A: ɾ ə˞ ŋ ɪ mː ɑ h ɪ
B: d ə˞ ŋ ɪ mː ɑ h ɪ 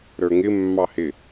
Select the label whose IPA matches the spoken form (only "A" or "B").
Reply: A